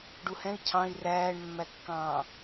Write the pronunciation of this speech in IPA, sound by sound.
ɖ u h ɛ̃ i̯ cʰ ɑ̃ i̯ r æː ɳ mː æ kː ɑ̃ː

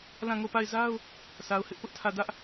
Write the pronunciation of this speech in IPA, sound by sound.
l ã˦˨ ŋ o˦˨ p a˦˨ ɪ̯ z a˦ ʊ̯ | s a˨ ʊ̯ h ɪ˦ ʔ p ʊ˦ ʔ tʰ ä˦˨ d ä˦ ʔ

